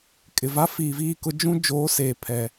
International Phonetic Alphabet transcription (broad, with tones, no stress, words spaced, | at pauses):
kʼɪ˨va˦ fiː˨ viː˦˨kʊ˦ d͡ʒũ˦ d͡ʒoː˨˦seː˨pʰɛ˨